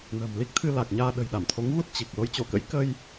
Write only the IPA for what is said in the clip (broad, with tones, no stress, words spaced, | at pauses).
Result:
nə̤ː˨˩mli˦˥k̚t̪ʰɨ˧ la˨˩k̚ɲaː˧ɗə̤˨˩j ɗa˧˩mt̪ʰo˨˦ŋɣu˦˥t̚ t͡ɕi˨˩k̚ lo˨˦j t͡ɕo˧˩kə̰˧˥j kə˧j